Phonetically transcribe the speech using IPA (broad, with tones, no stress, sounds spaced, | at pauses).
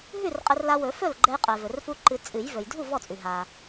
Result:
ɦ ʉ˥˨ r qʼ ɘ˧ r l a˧ w ɵ˨˩˦ f ɵ˥˨ l ɡ͡ǃ ɛ˧ j qʼ ɛ˩ v ɵ˩ r f u˧ ǃ ɨ˨˩˦ t͡sʼ ɨ˨˩˦ j v ɵ˩ j dʱ u˥˨ v ɔ˥˨ t͡sʼ ʉ˩ ɦ a˩